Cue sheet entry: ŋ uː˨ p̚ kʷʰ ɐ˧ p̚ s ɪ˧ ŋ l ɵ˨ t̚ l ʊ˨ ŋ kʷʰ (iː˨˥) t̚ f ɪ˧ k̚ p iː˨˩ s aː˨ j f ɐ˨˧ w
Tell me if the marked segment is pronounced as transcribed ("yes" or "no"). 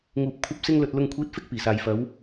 yes